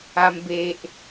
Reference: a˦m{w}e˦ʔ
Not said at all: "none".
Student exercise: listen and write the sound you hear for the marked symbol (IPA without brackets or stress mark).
b